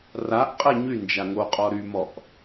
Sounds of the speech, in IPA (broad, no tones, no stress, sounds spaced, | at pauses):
r a ʔ qʼ ɛ ɲ y n d͡ʒ a ŋ o qʼ ɔ ɾ y m ɔ ʔ